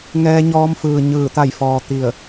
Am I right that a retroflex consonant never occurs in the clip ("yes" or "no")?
yes